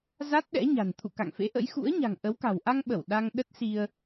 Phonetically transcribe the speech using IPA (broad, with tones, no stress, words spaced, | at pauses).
za˦˥t̚ɗɛ̰˧˥ɲa̤˨˩n t̪ʰṵ˧˨ka̰˧˨ŋfḛ˧˥ʔə̰˧˥j xṵ˧˥ə̯ɲa̤˨˩ŋ ʔə˨˦wka̤˨˩w ʔa˧ŋɓə˧˩w ɗa˧ŋ ɗə˦˥t̚si˧ə̯